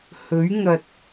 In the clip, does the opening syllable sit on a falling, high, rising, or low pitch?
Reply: rising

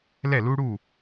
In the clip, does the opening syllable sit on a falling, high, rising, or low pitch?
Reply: falling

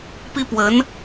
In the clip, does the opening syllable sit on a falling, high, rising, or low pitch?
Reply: high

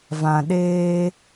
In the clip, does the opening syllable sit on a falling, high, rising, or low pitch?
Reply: low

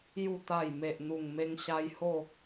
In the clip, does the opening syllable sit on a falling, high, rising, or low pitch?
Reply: low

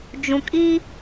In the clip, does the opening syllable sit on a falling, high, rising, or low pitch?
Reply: low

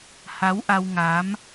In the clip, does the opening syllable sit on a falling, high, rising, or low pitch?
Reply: rising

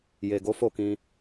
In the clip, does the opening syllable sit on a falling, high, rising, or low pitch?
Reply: low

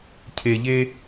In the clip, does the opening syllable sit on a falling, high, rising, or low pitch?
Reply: low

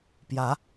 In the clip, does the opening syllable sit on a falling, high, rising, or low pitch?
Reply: rising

